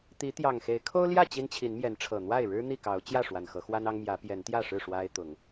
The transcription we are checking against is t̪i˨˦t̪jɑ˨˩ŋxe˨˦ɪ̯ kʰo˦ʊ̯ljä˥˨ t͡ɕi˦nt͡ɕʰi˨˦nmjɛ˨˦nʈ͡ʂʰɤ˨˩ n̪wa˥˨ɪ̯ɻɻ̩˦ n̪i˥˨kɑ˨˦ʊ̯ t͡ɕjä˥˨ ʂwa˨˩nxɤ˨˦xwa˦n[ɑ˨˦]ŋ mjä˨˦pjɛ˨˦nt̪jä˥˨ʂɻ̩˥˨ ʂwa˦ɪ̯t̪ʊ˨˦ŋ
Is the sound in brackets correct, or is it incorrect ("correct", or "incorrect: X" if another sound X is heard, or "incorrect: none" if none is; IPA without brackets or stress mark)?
incorrect: ɑ˦